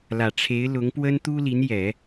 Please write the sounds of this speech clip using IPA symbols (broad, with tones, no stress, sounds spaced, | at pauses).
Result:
l ä˨˩ ʈ͡ʂʰ e˧˥ ɪ̯ l ʊ˧˥ ŋ p w ə˥ n t̪ u˥ l i˧˥ n j ɛ˨˩˦